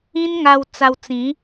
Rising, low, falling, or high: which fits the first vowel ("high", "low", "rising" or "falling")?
high